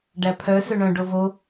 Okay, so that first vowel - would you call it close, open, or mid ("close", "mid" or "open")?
open